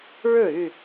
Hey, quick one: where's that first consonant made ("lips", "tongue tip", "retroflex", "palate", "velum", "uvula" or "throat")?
retroflex